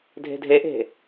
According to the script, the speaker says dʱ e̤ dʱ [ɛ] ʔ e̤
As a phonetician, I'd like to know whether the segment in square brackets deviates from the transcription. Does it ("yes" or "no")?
yes